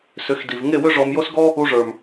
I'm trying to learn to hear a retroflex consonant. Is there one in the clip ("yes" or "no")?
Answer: yes